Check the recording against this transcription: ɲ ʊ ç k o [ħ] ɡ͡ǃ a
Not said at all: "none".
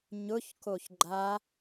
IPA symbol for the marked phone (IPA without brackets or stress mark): ç